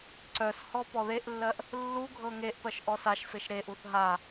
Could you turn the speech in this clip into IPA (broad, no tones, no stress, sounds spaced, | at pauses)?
ǀ œ s h ɔ p ɔ ð e ʔ lː ɜ ʔ | lː u ɡʱ ɤ ŋ e ʔ p ɜ ʃ ʔ ɔ s a ʃ f e ʃ ɾ e ʔ u θ ɦ a